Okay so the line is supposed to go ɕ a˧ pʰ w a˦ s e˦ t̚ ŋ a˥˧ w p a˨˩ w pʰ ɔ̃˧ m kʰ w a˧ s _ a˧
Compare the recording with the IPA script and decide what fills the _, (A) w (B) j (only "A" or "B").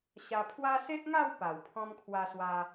A